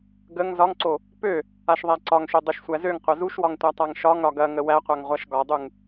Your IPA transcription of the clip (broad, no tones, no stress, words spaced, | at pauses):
ɡəŋ zɒŋǀo | pø | aʃðˤæǀɒŋʃø dˤøʃsʷæzøŋ qʷɐzuʃwɒŋtʷa tˤaŋʃɒŋ ɾɒɡɐ ŋəwæqʷaŋ ʁʷaʃɡɒdˤuŋ